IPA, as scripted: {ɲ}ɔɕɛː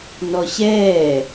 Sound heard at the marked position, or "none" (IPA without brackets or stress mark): n